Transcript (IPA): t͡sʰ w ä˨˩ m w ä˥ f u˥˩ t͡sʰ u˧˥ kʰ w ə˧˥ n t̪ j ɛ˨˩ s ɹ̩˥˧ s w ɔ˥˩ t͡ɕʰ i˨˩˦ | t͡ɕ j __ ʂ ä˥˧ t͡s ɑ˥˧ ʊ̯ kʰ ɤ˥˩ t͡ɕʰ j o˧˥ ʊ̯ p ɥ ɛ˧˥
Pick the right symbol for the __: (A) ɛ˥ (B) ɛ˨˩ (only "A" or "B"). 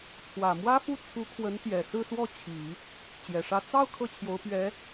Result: B